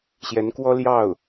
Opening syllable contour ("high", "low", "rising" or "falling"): rising